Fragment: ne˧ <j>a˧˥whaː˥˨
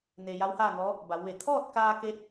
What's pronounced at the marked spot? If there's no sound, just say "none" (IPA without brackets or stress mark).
j